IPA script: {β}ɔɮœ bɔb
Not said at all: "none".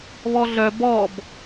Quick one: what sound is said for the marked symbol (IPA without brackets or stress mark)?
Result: β